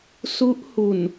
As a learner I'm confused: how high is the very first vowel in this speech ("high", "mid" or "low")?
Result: high